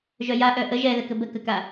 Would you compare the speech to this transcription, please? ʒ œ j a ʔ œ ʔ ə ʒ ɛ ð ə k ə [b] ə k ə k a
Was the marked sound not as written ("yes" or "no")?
no